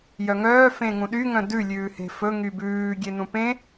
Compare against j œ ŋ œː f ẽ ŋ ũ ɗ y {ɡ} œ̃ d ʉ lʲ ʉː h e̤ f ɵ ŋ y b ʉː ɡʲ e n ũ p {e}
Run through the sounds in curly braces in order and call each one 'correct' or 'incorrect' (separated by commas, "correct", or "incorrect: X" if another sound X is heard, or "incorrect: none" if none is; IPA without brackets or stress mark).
incorrect: ŋ, incorrect: ẽ